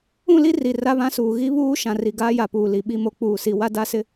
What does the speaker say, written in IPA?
ũ˦˨ l i˦ r i˨ r a˦ β ã˦ s uː˨ ɣ i˦ β uː˦ ʃ ã˨ r i˨ ɡ aː˦ j a˨ p uː˨ l i˨ ɓ i˦˨ m o˦ k͡p uː˨ s i˨ w a˦ d a˦ s ɪ˦

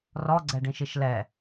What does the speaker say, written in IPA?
r ɔ ɡ͡ǀ ɛ ɖ ĩ ʃ i ʃ l ɛ

